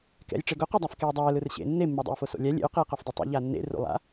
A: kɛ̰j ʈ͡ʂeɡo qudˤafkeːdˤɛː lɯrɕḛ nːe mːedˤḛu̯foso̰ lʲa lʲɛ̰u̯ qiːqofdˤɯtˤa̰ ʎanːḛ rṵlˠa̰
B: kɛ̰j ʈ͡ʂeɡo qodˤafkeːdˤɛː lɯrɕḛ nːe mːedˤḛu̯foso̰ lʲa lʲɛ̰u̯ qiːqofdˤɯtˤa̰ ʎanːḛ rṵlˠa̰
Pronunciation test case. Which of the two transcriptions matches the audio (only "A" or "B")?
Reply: A